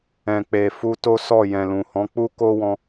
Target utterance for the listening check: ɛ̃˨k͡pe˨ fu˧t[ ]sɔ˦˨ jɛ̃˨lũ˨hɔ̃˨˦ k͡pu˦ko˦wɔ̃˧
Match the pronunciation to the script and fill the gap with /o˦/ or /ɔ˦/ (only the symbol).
o˦